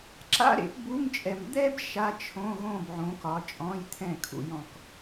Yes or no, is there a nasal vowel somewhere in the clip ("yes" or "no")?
yes